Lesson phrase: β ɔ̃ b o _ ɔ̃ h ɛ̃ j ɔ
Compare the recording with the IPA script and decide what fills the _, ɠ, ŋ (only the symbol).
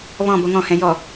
ŋ